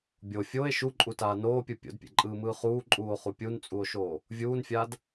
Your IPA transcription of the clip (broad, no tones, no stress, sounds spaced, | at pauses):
bʲ o fʲ o e̯ ʃ u ǃʼ u t aː n oː pʲ ɯ pʲ o̰ d pʲ ḛ ǃʼ ɯː m ɯː χ uː ǃʼ uː o̯ χ u pʲ u n t͡sʼ u o̯ ʃ oː | vʲ uː n fʲ aː d